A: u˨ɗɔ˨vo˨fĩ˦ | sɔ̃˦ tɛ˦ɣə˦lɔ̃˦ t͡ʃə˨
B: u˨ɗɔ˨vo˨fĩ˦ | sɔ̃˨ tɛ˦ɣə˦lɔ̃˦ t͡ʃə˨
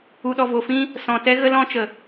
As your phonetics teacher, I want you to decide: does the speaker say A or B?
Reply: B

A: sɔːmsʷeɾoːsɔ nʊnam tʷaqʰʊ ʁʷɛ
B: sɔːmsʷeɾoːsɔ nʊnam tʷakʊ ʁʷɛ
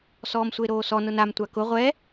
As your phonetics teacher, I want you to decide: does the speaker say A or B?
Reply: B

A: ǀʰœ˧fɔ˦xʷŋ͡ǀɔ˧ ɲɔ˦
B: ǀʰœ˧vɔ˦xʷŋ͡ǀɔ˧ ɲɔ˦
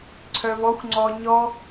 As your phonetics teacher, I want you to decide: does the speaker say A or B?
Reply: B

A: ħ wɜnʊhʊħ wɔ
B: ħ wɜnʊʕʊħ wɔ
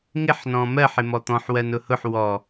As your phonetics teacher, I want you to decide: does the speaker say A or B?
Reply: A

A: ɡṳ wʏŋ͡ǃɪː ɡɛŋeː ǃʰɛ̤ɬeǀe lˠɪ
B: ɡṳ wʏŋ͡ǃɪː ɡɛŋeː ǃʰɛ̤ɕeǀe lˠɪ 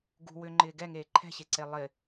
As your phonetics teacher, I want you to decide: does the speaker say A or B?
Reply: B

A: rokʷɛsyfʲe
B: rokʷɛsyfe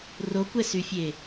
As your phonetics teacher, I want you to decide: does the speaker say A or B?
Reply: A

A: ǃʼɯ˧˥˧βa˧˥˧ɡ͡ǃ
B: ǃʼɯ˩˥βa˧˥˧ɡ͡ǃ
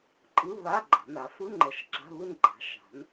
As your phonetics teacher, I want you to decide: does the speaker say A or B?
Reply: A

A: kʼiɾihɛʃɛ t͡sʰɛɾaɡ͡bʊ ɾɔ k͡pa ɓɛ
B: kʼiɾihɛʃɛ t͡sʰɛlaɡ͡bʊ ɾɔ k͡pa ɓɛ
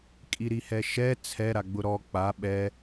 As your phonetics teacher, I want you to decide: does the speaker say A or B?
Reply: A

